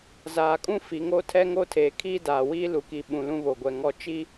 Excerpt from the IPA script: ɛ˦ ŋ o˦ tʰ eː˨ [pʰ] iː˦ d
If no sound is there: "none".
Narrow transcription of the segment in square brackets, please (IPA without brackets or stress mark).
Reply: kʰ